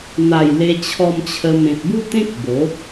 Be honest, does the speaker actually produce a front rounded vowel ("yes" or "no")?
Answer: no